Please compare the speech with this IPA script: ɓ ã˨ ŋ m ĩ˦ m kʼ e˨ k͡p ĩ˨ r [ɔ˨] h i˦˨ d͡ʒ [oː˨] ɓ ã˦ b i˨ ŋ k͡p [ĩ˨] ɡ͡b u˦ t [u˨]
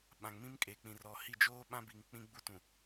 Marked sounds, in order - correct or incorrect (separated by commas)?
correct, incorrect, incorrect, incorrect